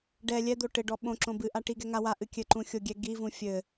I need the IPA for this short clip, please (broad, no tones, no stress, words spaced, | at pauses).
ɖɛ lʲɛd̪o ʈɘɖɔ ɓõ ǁõbɨʔa ʈiɡɛ ŋa waʔɨ kʲɘǃũ xʲoɡʲɛ ɡivũ fʲɘ